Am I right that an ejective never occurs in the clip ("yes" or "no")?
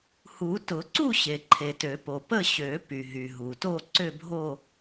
yes